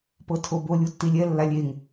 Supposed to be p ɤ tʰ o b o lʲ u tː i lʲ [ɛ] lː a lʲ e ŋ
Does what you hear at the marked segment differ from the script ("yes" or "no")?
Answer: no